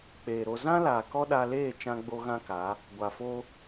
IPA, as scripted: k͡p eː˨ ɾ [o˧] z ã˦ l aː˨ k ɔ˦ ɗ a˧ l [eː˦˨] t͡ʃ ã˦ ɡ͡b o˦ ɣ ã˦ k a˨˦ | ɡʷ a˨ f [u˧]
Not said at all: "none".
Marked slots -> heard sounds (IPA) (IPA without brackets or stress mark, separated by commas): o˧, eː˦˨, o˧